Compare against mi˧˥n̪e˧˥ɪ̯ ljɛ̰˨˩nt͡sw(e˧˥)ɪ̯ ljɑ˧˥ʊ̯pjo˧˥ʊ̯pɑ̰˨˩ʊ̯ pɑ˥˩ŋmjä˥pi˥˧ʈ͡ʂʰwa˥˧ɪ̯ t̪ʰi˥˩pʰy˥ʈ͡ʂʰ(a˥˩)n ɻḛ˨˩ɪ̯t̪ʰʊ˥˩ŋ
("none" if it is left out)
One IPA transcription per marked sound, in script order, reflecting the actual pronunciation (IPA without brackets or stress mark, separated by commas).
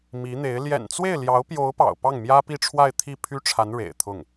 e˥˩, a˧˥